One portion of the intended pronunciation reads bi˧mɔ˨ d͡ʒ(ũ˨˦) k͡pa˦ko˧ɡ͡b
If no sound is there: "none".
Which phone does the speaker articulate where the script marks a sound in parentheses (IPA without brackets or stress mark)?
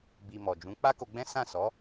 ũ˨˦